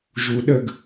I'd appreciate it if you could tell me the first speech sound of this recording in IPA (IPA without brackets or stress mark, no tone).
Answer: ʒ